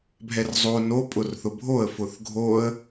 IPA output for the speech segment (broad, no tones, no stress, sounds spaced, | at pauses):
bʱ ɛ r zˤ o n o pʼ ʊ r θ ʊ bʱ o ə̯ f ʊ θ ɡʱ o ə̯